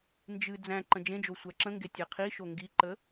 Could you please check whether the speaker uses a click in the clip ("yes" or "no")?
yes